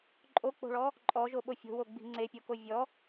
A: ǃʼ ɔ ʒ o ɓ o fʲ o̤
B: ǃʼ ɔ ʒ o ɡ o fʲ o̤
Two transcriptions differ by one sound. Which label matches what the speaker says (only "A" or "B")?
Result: A